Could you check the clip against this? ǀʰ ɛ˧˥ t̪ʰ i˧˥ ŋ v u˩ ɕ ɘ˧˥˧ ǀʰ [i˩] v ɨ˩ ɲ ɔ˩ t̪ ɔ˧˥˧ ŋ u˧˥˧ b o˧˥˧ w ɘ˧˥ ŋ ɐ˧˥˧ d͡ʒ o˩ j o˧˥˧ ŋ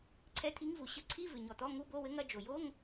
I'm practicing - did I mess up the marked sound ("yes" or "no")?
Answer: yes